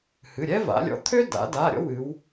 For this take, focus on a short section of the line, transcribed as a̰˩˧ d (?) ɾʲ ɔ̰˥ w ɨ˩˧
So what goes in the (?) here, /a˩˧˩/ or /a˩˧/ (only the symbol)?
a˩˧˩